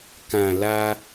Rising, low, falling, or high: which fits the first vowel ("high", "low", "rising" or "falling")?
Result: low